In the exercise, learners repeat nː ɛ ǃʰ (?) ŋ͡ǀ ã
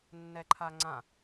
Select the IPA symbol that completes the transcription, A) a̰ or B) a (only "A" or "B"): B